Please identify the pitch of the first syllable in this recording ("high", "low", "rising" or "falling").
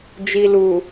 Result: low